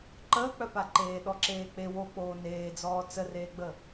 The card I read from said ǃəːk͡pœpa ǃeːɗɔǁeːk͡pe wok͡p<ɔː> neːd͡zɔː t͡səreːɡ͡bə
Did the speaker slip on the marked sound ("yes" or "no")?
yes